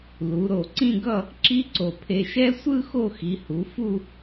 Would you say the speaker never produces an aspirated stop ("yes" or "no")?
no